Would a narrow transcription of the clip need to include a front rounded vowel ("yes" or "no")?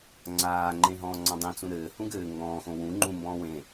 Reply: no